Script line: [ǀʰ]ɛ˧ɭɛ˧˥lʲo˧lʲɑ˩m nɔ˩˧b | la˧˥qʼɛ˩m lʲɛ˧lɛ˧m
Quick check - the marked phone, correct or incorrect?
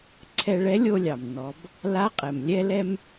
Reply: correct